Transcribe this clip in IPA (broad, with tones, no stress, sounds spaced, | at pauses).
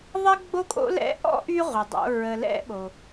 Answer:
ðˤ ɛ˥ ɡ͡b o˥ kʼ o̰˥ l ɛ̰˦ ʔ ɔ̰˥ ʔ y˦ ʁʷ ə˩ dˤ o̰˨ ɹ ə˨ l ɛ̰˦ ɓ o˩